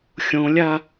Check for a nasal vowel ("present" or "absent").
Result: present